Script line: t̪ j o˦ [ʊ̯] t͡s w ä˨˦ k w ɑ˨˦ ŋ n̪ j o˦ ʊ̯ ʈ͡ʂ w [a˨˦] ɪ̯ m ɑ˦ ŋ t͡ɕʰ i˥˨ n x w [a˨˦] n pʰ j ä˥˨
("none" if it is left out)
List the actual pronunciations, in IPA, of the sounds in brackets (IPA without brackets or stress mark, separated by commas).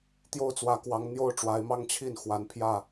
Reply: ʊ̯, a˨˦, a˨˦